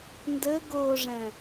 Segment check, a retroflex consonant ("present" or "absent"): present